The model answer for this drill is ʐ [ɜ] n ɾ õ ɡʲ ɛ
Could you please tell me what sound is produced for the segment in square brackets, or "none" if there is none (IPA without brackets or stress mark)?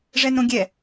ɛ